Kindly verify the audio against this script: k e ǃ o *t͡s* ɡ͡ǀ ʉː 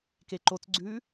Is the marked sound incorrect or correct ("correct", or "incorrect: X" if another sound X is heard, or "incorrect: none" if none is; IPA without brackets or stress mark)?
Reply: correct